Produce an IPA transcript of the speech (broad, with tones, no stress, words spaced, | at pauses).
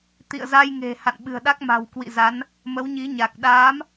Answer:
t̪ḭ˧˨ə̯za˧j ŋe̤˨˩ ha̰˧˨nɓɨ̤˨˩ə̯ɗa˦˥k̚ ma̤˨˩wkwḭ˧˨za˨˦n | mə˨˦wɲi˨˦ɲa˨˩k̚ ɗaː˨˦m